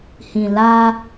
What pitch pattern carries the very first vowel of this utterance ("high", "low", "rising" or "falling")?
low